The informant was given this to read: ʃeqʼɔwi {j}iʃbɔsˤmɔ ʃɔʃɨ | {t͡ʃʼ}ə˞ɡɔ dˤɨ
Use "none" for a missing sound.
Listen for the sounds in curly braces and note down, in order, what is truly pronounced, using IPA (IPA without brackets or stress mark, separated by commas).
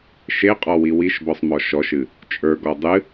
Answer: w, t͡ʃʼ